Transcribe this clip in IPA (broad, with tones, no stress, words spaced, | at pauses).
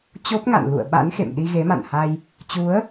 t͡ɕo˦˥p̚ŋa̰˧˨n lṵ˧˨ə̯ɓa̰˧˥nxḛ˧˨m ɗi˧ɣe˨˦ma̰˧˨nha˧j | t͡ɕu˨˦ə̯